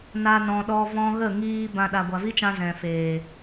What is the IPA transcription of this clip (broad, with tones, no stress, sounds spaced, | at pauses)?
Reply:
n a˧ n ɔ̃˨ ɗ ɔ˧ v ɔ̃˧ ɣ ə˦˨ ŋ iː˧ b ã˧ ɗ a˨ ɡʷ a˨ v i˦ t͡ʃ ã˧ z ɛ̃˨ f eː˨